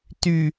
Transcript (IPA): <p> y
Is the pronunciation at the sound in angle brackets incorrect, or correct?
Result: incorrect